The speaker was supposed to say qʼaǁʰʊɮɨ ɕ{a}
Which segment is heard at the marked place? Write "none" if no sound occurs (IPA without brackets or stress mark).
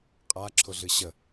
ə